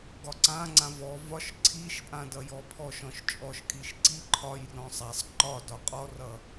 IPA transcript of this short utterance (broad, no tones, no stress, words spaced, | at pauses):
ɡɒǀãŋ͡ǀã vɔ vɒʃ ǀʰiʃpʼã dʌjɔpʰɔʃɔ̃ʃ t͡ʃʼɔʃkʼiʃ ǀi ǃʰɒjrɔ̃ sˤasˤ ǃɒ dɒqʼɔrʌ